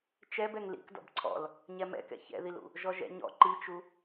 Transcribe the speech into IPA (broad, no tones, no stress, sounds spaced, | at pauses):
t͡ʃ ɛ b ɛ ŋ l ḭ k d ɔ̰ b ǀʰ ɔ̰ l | ɲ ɛ m ɛ̰ k ɛ̰ ç ɛ̰ ð i l ṵ | ʒ ɔ ʒ ɛ̰ ɲ ɔ̰ ǃ i t͡ʃ u